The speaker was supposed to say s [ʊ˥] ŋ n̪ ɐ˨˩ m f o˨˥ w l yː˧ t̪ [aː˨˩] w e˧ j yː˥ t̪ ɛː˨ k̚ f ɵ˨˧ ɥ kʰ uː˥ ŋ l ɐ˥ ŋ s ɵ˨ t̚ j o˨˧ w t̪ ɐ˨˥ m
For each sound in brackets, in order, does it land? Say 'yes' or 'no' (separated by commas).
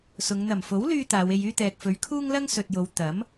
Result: no, no